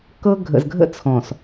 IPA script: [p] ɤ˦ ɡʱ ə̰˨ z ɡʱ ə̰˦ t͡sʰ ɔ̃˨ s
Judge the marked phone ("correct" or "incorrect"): incorrect